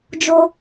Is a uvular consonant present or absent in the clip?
absent